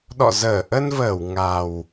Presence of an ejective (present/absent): absent